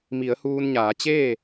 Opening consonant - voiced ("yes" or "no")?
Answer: yes